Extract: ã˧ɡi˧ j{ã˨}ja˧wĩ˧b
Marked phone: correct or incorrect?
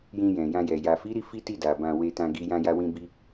incorrect: ã˧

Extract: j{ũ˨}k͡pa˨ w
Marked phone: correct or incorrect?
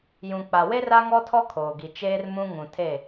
correct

